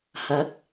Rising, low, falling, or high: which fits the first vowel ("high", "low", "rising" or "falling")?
rising